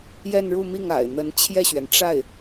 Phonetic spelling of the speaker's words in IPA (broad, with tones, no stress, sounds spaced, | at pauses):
j ɛ˥˧ n ɻ u˥˧ m i˥˩ ŋ a̰˨˩ ɪ̯ n̪ ə˧˥ n t͡ɕʰ j ɛ˥˩ ɕ ɥ ɛ˩ n ʈ͡ʂ a˥˩ ɪ̯